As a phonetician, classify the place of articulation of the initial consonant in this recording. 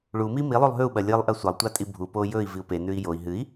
retroflex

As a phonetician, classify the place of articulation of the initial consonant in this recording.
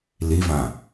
alveolar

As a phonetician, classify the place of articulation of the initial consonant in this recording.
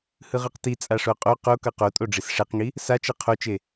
glottal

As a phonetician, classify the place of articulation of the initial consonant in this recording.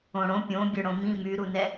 retroflex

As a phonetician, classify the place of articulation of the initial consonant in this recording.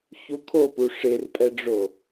palatal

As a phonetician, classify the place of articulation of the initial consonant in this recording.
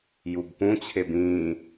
palatal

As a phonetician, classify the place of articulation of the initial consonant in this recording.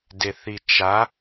alveolar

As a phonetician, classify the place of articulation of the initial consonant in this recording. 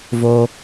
labial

